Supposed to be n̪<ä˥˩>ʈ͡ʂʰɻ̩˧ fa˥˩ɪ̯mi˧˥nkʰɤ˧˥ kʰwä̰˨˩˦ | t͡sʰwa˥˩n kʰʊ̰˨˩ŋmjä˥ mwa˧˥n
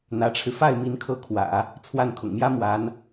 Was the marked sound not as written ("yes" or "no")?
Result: yes